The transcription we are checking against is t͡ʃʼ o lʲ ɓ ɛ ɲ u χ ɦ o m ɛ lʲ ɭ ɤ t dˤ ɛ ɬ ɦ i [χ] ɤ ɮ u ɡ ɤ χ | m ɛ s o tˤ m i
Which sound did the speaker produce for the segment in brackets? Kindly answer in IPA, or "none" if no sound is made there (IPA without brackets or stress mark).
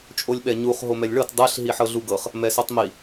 ħ